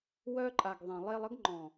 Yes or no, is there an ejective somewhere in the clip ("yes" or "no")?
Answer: yes